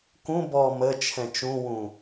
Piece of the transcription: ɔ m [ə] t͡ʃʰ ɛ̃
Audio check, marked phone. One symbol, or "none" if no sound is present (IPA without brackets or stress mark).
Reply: ə